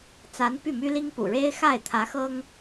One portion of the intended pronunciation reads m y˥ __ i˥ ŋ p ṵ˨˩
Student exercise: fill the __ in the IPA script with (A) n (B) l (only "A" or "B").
B